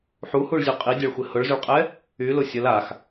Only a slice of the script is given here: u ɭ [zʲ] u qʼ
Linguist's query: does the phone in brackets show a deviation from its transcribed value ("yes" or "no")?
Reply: no